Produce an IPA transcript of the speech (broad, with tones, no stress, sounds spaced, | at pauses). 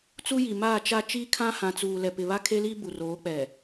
t͡s u˦ j i˨ m aː˦˨ t͡ʃ a˦ t͡ʃ iː˦ kʰ ã˦ h ã˨ t͡s uː˨ l ɛ˨ p ɪ˨ β a˦ kʰ e˦ l i˦ b u˨ r oː˨˦ k͡p ɛ˨